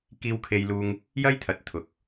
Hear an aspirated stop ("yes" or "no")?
yes